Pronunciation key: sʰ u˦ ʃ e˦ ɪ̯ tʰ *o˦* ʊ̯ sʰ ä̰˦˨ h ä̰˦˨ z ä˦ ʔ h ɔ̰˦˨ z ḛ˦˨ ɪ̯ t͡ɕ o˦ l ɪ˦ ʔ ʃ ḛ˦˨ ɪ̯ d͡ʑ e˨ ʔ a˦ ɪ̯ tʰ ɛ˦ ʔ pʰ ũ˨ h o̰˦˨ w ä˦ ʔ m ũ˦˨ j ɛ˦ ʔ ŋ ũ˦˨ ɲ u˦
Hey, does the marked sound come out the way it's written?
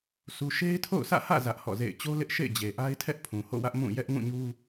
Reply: no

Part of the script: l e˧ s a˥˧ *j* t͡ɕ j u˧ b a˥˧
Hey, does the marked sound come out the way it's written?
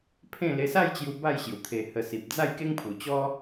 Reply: yes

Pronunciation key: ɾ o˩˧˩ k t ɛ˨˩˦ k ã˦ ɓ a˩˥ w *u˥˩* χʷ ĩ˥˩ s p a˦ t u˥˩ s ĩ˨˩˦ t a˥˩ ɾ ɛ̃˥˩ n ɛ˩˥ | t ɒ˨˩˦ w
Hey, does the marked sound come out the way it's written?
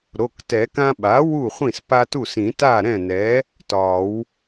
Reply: yes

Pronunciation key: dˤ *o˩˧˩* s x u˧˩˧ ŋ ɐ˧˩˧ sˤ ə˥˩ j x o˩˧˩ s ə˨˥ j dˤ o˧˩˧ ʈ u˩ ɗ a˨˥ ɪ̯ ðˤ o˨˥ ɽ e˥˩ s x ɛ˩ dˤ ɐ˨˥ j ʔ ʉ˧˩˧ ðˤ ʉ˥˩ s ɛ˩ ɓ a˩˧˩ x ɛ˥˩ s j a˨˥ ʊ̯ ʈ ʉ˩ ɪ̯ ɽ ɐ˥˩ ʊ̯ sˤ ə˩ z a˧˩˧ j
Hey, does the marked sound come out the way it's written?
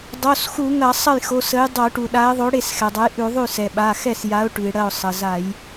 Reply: yes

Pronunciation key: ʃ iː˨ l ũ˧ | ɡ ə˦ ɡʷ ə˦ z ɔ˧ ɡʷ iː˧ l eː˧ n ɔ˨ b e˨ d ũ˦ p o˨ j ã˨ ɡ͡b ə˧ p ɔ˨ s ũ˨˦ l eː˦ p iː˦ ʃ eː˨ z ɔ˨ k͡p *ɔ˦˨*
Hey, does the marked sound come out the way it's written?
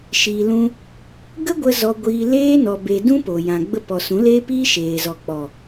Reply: no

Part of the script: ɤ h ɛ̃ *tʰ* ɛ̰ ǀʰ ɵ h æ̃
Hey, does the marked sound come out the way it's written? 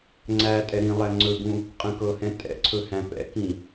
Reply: no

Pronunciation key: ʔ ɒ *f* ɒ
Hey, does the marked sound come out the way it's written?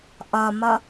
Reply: no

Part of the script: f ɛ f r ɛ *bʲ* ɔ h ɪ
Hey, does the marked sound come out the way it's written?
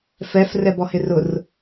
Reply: no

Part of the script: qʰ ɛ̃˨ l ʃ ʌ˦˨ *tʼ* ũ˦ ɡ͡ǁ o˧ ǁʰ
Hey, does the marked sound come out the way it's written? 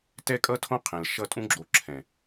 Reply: yes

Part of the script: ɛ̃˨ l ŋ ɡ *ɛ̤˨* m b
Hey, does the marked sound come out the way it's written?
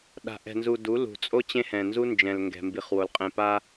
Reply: yes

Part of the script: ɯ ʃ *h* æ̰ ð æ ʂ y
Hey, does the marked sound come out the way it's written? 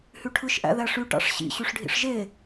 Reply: no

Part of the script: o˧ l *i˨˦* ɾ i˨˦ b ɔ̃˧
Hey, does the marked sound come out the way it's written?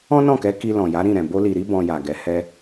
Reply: no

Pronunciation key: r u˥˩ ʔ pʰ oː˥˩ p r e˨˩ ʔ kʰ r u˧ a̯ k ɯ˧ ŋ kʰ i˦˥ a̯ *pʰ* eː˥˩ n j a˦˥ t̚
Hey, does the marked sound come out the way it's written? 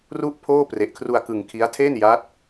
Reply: no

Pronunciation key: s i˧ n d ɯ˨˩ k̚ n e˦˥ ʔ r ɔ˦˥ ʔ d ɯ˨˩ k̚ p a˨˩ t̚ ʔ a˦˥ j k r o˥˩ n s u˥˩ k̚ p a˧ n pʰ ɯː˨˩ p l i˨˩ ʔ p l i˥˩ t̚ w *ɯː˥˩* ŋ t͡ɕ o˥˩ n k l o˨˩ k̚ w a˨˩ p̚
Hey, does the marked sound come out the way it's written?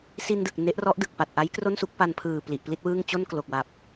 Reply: yes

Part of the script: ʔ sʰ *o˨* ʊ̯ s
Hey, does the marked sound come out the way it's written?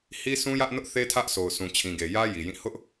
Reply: yes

